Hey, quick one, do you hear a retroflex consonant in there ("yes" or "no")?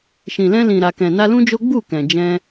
no